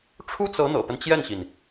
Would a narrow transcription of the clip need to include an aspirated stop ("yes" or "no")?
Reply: yes